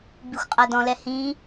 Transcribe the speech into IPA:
b i xʷ qʼ a d ɔ̃ l ɛ h ĩ

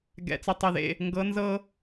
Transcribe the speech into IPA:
ɡ ɛ̰˩˧˩ t͡s ɪ˨˥ tˤ ɪ˩˧˩ ð ḛ˥˩ | ŋ ɡ ɤ˩˧ n z ɤ˧

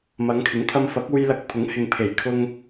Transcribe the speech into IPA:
m ɐ˨˧ ŋ kʰ ɪ˨˥ ŋ t̪ʰ ɐ˧ m f ɐ˨˥ k̚ uː˧ j l ɐ˧ k̚ pʰ ʊ˨˥ ŋ h ɪ˨ ŋ pʰ e˨˩ j kʰ ʊ˧ ŋ

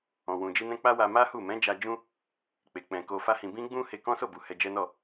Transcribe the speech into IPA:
ɔ̃˨ w ũ˨ d͡ʒ i˧ n ɛ̃˧ k͡p a˦ w a˧ m a˦ h u˦˨ m ɛ̃˨˦ d͡ʒ a˧ d͡ʒ ũ˦ | k͡p e˨ k͡p ɛ̃˨ k o˧ f a˦ h ĩ˧ b ĩ˦ ɡ͡b ũ˦ h e˧ k ɔ̃˦ s o˦˨ b u˨ h ɛ˧ d͡ʒ ɛ˦ n ɔ˦˨

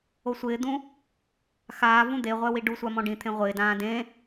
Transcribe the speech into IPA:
o sʷ ɪː d̪ ũ | x aː v ũ d̪ e ʁʷ ɛ w i ɖ u sʷ a m ɔ̃ ɖ ĩ t̪ʰ ẽ ʁʷ ɪː d ãː d ẽ

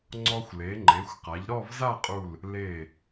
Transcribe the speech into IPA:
ŋ͡ǀ ɔ˧ xʷ l e˩˧ ŋ͡ǃ e˩˧ xʷ q a˩˧ ʎ ɾ ɔ˥˧ v z a˥˧ qʼ u˧˩ l | l e˧˩

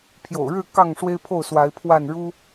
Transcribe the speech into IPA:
pʰ j o̰˨˩ ʊ̯ ɻ ɻ̩˥˨ k ɑ˥˨ ŋ ʂ w e˦ ɪ̯ pʰ o˥˨ ʊ̯ s w a˨˦ ɪ̯ pʰ w a˥˨ n ɻ u˦

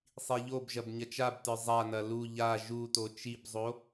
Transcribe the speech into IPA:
sˤ i ʎ o b ʒ ɐ b ɲ ɐ t͡ʃ a b t ə˞ zˤ a n ɐ l u ʎ a ʒ u t o t͡ʃ i b zˤ o

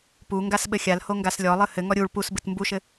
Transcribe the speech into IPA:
p u ŋ ɡ a s ɓ ɘ xʲ a l h o ŋ ɡ a s lʲ ɔ lˠ ɨ h ɘ ŋ ɔ ɾʲ u ɭ p u s b ɨ t m b u ʃ ɘ

